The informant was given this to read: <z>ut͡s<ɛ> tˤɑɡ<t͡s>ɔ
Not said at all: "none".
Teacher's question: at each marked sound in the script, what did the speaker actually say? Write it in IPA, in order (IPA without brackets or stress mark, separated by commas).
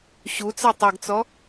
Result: ɕ, ɛ, t͡s